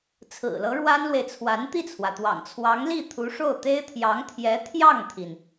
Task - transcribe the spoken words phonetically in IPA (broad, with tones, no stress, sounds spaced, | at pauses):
t͡sʰ ɹ̩˨˩ l ɤ˧˥ ɻ w a˥ n l w e˨ ɪ̯ t͡sʰ w a˧˥ n t̪ i˥˩ t͡sʰ w ä˩ t̪ w ɑ̰˨˩ ŋ t͡sʰ w ɑ˧˥ ŋ l i˥˩ t̪ʰ u˧˥ ʂ o˥˩ ʊ̯ t̪ e˥ ɪ̯ t̪ʰ j ɑ˧˥ ŋ t̪ʰ j ɛ˧˥ t̪ʰ j ɑ˥˩ ŋ t̪ʰ i˩ n